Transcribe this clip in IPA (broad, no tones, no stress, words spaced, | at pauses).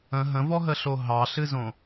ə̃ ɦə̃vɔɦəɬo ɦɑɬɨzõ